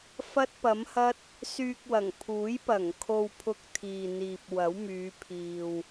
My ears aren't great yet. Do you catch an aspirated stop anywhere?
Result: yes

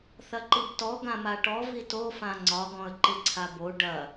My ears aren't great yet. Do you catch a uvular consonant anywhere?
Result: no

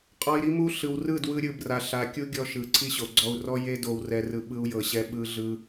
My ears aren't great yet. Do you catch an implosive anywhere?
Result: yes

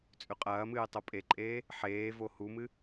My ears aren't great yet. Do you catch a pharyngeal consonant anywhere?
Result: yes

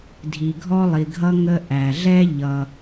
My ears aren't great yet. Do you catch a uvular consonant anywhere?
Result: no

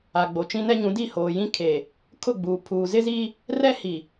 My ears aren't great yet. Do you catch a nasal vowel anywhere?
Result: yes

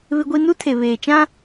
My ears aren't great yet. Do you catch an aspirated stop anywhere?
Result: yes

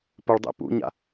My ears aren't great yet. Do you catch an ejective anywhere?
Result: no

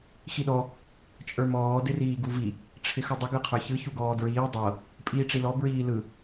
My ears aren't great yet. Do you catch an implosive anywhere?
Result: yes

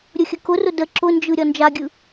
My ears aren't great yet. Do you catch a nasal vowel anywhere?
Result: no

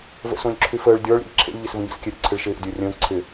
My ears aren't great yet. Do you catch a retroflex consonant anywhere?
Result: yes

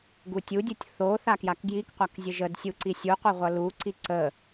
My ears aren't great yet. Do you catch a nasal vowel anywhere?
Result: no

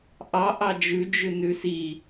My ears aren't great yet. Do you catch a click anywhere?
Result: no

